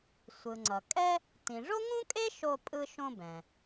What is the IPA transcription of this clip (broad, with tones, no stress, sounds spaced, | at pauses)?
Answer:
sʷ ɯ˩ ŋ͡ǀ ʌ˩ kʼ ɛ˥ | t ĩ˩ ʐ o˥ ŋ ũ˥ kʼ e˥ ʃ o˧ pʼ ɯ˧ ʃ õ˧ b ɛ̃˩